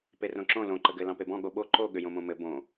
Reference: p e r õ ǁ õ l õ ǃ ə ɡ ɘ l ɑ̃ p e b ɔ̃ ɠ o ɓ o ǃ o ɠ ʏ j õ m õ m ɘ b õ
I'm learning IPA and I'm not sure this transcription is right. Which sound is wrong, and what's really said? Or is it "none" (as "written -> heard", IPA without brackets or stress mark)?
none